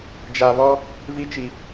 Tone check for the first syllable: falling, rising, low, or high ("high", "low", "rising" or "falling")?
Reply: low